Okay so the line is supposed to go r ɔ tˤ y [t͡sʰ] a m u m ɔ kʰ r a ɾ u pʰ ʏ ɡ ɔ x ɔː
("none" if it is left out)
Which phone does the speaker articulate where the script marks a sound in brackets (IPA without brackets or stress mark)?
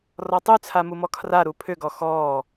t͡sʰ